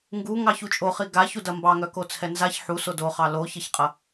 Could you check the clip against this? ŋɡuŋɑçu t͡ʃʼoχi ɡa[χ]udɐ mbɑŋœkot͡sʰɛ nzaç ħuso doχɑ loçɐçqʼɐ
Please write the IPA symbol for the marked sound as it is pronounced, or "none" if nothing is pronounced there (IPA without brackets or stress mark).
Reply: ç